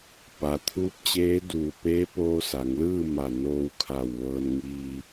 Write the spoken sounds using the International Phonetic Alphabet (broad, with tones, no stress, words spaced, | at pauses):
pa˩t̪ʰuː˧˥p̚t͡ɕeː˧˥duː˧˩ peː˧˥poː˧sa˩˧ŋlɯː˥˨ ma˧˩noː˧wkʰa˧˩w ʋɤː˧nŋiː˧